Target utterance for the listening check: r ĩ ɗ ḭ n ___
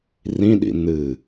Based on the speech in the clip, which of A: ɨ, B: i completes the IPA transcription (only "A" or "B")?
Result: A